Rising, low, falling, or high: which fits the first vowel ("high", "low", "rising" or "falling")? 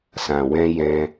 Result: low